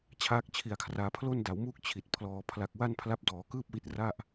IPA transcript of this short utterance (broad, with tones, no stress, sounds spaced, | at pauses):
t͡ɕʰ aː˦˥ k̚ t͡ɕʰ i˨˩ a̯ kʰ r aː˧ pʰ l o˥˩ n d a˩˦ w m uː˥˩ k̚ t͡ɕʰ i˨˩ t̚ pʰ l ɔː˩˦ pʰ l a˨˩ k̚ w a˥˩ n pʰ l a˦˥ p̚ d ɔː˩˦ k ɯː˥˩ p̚ w i˦˥ t̚ r a˥˩ ʔ